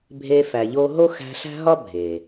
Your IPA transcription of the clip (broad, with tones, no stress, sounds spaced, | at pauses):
bʱ e˧ f æ˨ ʎ o˧ ɦ o˦ x æ̤˧ ɬ æ̤˦ ɦ ɒ˦ bʱ e˨